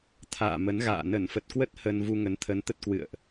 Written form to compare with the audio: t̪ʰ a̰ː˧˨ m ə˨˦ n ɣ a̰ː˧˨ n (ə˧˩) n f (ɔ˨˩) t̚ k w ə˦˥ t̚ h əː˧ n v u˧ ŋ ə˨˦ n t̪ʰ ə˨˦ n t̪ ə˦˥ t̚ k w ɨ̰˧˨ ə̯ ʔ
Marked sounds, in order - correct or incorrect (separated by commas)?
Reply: correct, incorrect